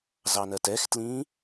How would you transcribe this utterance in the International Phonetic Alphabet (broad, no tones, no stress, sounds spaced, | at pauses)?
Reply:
z ɑ n ɜ t ɛ x t l ĩː